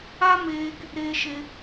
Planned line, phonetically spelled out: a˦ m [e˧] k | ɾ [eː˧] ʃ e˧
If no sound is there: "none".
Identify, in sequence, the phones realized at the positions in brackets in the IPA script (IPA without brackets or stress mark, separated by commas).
eː˧, eː˧